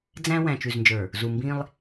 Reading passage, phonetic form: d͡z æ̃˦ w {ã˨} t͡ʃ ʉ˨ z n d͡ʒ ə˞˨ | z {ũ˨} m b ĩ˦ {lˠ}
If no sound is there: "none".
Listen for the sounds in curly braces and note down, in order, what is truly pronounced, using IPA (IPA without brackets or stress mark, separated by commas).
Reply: æ̃˨, u˨, lˠ